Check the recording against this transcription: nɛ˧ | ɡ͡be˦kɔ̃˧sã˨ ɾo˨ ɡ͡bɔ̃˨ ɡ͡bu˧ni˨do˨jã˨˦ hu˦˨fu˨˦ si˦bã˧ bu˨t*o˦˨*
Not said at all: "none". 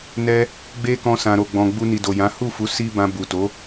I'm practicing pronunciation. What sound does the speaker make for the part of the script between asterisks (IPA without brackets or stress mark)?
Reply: o˨˦